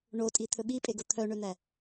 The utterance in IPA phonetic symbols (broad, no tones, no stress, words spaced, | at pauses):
ɳotʼi t̪ʰɵɓipʼeɡo t̪ʰœɳøn̪æ